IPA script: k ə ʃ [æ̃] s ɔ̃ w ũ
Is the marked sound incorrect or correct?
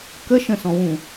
incorrect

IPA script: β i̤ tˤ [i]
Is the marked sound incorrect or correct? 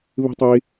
correct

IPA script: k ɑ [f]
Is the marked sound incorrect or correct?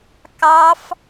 correct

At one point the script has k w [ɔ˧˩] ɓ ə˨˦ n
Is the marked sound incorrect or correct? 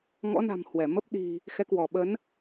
correct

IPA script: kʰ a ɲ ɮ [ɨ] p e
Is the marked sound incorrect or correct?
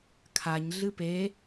correct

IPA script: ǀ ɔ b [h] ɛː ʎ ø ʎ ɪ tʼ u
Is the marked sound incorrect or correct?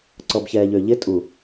incorrect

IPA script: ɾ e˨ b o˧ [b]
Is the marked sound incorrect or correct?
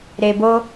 incorrect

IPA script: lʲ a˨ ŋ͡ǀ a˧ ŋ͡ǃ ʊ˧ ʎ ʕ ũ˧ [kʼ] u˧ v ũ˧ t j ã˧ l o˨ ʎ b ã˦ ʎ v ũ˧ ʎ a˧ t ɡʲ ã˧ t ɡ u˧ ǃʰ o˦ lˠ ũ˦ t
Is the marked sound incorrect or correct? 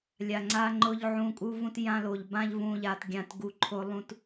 correct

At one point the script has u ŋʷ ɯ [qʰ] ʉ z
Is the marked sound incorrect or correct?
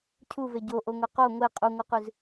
incorrect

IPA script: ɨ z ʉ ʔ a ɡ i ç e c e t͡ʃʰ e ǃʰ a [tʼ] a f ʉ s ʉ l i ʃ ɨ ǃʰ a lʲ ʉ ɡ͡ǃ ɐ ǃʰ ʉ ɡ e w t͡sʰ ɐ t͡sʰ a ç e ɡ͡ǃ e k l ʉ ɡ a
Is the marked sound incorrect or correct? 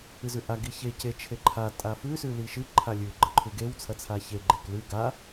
correct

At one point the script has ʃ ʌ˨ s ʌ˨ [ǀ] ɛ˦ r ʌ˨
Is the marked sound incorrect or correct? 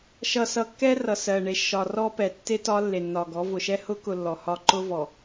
incorrect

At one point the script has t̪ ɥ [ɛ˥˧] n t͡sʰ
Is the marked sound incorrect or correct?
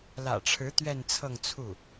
correct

